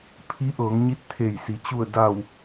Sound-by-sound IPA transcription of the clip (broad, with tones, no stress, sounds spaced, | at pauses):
pʰ i˧˥ ʔ ɤː˩˧ ŋ ɲ i˧˥ t̚ t̪ʰ e˧˩ j s i˩˧ t͡ɕ u˧˩ ə̯ d a˧˩ w